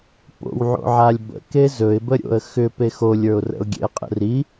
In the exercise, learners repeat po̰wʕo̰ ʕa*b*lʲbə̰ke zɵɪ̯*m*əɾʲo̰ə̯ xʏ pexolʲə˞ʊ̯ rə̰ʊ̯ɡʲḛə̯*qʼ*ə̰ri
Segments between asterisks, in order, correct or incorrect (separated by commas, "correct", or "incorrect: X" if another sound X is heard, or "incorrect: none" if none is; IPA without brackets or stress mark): incorrect: none, incorrect: b, correct